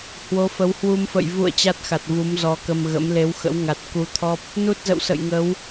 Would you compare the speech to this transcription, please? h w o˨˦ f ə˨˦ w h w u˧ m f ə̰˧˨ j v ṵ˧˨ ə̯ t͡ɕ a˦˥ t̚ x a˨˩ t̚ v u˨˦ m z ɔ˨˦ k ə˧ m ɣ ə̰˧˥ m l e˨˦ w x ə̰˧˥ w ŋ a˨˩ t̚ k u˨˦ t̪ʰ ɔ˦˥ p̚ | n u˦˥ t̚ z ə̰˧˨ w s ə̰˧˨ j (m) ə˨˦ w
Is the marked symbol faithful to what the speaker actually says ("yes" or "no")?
no